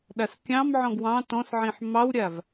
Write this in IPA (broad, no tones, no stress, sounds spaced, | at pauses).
ɗ a s kʲ ɑ̃ m ʕ ɔ̃ ɡ w ɑ̃ t ɔ̃ s ʕ ĩ ħ m ɑ w ɾʲ a v